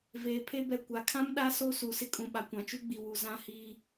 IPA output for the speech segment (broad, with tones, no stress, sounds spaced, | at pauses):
v eː˨ pʰ e˦ b ɛ˨ kʷ a˨ kʰ ã˦ m ɗ a˦ s o˦ s u˨ s ɪ˦ kʼ ũ˨ ɓ a˨ kʷ ã˨ t͡ʃ u˦ ɡ͡b i˨ w u˨ z ã˦ h iː˦